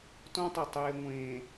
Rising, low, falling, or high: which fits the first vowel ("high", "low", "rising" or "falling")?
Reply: high